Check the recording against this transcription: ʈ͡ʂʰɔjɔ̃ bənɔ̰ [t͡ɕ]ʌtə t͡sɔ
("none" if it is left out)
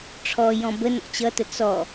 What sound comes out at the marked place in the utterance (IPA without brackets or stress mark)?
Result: t͡ɕ